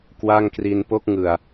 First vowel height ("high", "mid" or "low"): low